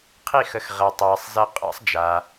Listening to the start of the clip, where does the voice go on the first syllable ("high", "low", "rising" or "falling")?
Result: falling